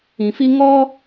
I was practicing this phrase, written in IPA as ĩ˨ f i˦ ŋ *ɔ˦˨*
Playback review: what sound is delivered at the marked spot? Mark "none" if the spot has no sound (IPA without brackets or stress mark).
ɔ˦